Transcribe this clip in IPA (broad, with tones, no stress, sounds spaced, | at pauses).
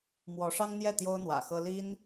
m w ɔ˧˥ ʂ ɑ˥ ŋ n̪ j ɛ˥˩ t̪ j o˥ ʊ̯ n̪ w ä̰˨˩ x ɤ˥ l i˥ n